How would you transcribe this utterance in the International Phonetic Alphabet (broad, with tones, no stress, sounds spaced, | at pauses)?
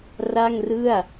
r a˥˩ ŋ r ɯ˥˩ a̯